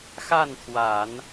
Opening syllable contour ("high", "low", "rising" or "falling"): falling